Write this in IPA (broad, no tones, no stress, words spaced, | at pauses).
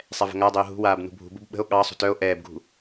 sˤɛvə̤ŋadˤøo̯ ɦṳwaːb nṳbʱṳbub ɓə̤o̯ ɠɑsˤṳt œo̯ ʔɛːbɡṳ